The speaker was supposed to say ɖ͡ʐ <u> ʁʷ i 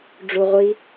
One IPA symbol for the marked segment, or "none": u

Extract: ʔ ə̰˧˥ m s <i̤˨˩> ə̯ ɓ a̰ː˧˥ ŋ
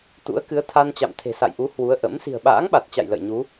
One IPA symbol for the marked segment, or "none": i̤˨˩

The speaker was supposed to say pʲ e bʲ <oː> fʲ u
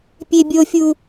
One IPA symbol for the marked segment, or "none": o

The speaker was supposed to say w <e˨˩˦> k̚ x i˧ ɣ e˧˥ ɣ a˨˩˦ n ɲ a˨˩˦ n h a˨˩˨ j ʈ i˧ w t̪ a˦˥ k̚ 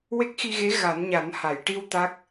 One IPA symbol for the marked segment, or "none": e˦˥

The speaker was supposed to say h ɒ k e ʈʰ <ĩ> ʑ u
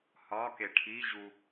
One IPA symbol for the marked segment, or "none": i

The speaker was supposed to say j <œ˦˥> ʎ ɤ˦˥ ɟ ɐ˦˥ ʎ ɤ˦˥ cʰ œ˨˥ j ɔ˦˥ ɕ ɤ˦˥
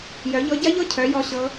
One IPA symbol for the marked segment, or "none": œ˨˥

